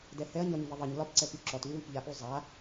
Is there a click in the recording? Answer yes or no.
yes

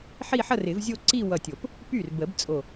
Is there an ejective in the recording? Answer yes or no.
yes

